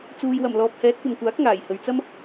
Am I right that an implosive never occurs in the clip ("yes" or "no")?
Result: yes